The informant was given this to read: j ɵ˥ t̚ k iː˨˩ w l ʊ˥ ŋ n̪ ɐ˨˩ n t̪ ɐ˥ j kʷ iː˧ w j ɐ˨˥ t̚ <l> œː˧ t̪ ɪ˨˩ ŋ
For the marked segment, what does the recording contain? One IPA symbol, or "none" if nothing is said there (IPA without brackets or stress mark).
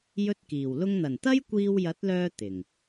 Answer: l